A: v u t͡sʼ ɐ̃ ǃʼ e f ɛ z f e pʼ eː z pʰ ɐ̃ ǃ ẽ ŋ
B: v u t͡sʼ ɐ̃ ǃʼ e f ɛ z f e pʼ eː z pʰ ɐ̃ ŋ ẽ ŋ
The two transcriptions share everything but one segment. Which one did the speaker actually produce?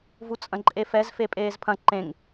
A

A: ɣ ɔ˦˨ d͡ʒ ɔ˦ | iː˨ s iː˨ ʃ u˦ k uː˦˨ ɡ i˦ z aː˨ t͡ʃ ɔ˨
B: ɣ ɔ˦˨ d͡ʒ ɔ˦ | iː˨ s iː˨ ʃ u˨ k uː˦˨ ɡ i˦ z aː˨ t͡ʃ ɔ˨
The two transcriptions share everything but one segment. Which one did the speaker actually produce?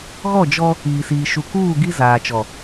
B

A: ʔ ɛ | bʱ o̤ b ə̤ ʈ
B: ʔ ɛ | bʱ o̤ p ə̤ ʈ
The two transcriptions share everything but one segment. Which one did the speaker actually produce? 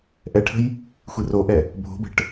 A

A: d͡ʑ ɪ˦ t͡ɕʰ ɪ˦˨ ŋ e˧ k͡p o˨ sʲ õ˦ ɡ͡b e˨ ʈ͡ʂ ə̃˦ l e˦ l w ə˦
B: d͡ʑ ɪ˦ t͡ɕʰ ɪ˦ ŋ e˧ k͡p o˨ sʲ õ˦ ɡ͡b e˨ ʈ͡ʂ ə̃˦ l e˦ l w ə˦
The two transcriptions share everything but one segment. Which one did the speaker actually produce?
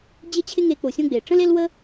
B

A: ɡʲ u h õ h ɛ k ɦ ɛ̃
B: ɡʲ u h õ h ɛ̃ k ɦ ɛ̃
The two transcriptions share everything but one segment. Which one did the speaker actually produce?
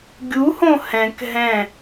B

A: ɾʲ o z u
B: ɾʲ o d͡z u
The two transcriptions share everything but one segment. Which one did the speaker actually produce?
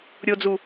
B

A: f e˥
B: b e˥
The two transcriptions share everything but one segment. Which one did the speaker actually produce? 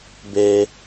B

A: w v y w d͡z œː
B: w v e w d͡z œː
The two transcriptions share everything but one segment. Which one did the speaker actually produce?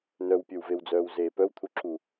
B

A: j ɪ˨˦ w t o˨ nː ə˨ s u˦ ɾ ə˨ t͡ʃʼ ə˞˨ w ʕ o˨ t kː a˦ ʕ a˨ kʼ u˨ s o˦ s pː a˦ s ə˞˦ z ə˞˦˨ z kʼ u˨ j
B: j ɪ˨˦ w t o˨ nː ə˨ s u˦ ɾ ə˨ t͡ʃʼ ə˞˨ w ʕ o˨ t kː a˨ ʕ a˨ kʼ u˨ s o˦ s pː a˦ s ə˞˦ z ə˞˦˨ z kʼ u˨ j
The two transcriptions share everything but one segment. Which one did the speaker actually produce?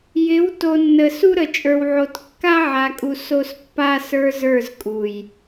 A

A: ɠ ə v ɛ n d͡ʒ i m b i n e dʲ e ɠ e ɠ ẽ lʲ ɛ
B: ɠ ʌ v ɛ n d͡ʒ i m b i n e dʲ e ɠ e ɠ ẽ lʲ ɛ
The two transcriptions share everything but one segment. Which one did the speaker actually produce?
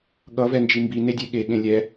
B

